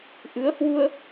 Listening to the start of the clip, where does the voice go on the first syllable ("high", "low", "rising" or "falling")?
rising